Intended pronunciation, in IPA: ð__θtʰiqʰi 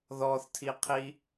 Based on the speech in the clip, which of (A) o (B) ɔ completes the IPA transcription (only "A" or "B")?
B